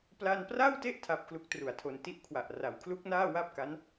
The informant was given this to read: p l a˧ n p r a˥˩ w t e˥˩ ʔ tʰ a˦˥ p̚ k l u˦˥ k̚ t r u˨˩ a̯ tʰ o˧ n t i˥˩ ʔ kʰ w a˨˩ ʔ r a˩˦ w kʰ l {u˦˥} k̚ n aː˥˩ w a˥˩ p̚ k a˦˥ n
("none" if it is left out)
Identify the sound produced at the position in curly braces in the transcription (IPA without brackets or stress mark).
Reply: u˦˥